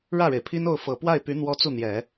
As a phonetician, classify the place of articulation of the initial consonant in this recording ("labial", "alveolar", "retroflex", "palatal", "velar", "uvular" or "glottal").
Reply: retroflex